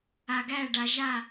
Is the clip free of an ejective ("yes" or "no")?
yes